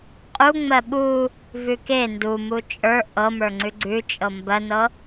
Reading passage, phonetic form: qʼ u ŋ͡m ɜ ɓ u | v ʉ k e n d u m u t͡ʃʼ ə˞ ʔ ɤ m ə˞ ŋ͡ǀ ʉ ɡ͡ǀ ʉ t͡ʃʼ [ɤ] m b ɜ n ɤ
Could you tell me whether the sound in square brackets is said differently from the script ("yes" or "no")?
no